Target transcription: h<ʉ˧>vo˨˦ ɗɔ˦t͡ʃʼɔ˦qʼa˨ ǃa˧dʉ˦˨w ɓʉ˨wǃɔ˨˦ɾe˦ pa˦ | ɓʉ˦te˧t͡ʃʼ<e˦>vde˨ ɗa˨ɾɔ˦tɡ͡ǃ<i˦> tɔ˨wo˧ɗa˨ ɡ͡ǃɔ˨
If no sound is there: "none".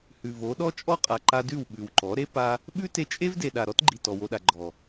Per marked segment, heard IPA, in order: ʉ˨, e˦, i˨

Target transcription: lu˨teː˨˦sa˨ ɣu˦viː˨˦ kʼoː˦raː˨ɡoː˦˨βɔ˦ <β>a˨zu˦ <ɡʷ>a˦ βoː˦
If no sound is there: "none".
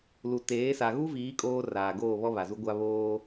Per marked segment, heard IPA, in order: β, ɡʷ

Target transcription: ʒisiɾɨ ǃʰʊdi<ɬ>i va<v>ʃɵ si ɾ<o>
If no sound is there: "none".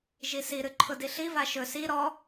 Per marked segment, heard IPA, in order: ɬ, none, ɔ

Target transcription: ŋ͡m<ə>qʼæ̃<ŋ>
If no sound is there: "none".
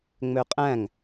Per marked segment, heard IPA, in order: ø, ŋ

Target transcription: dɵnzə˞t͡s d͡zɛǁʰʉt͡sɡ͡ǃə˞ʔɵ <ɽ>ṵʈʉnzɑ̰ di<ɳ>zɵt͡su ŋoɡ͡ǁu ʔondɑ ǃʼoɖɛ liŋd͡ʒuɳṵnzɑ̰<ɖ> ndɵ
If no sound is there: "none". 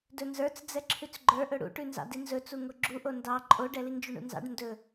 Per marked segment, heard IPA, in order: ɽ, n, ɖ

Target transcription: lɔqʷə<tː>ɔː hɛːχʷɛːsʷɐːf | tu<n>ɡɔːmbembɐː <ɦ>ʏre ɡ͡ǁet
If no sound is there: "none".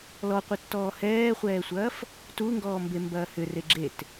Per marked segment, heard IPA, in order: tː, ŋ, h

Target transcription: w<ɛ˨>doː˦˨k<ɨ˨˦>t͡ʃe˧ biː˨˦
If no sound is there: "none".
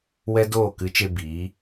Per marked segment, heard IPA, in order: ɛ˦, ɨ˨˦

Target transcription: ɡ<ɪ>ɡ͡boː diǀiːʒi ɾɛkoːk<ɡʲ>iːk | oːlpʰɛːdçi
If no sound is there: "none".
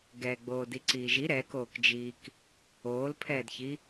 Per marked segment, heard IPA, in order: ɛ, d͡ʒ

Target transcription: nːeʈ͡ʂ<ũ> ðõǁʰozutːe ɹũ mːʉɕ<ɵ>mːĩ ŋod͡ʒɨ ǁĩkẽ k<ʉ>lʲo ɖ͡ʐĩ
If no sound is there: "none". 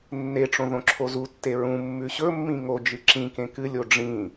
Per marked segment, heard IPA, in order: õ, ɵ, ɨ

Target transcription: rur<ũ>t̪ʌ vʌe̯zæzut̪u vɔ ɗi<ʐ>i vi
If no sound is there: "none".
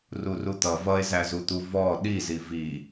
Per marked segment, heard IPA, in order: u, z

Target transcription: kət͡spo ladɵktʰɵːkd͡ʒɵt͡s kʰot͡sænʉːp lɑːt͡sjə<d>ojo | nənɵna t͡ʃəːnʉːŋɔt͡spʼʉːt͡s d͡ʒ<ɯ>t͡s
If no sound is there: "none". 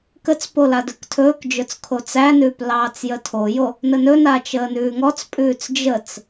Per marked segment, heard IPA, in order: tʰ, ə

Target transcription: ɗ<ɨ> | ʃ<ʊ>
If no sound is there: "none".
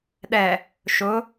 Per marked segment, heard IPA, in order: ɛ, ʊ

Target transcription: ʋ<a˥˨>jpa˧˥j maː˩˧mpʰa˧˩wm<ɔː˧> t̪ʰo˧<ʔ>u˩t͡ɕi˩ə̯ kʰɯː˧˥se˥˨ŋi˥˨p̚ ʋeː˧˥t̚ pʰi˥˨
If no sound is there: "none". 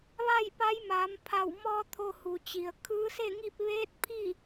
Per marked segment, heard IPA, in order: a˥˨, ɔː˧, h

